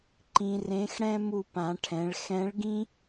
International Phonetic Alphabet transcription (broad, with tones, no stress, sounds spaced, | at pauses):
ǃ ĩ˧ r ẽ˧˥ x ɽ ɛ̃˥ m u˧ p ã˩˧ ʈʰ ɛ̃˩˧ ɭ x ɛ̃˧˥ ɭ ɡ ĩ˥